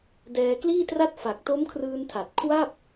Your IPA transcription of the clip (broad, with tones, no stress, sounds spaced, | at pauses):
d ɛː˧ k l iː˥˩ t r a˥˩ t̚ f a˨˩ k̚ t o˦˥ m kʰ r ɯː˧ n tʰ a˨˩ t̚ kʰ w a˥˩ p̚